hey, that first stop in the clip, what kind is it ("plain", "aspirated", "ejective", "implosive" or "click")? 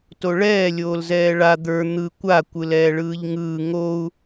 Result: plain